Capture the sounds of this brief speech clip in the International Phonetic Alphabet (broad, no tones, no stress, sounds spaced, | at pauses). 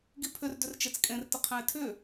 ɡ i pʰ ʏ r d ʏ r t͡ʃ e t͡s kʼ ẽ r t ə qʰ ɛ̃ ɪ̯ tʰ ʏ